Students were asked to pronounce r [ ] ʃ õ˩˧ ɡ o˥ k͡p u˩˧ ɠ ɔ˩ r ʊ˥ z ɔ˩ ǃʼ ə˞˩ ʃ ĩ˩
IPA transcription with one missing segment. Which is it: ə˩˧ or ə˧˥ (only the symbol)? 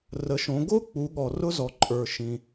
ə˩˧